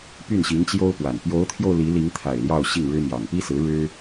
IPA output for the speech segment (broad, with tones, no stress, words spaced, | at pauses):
py˥˩nɕi˧˥ŋt͡ɕjo˥ʊ̯pwa˨˩n pjo˧˥ʊ̯t̪ʰjo˧ʊ̯ li˧˥li˧˥ŋt̪ʰa˨˩ɪ̯ ljɑ˥˧ʊ̯ɕi˥˩ŋɻɻ̩˥ mjɑ˨˩ŋpi˥sɹ̩˧˥ ɻɻ̩˥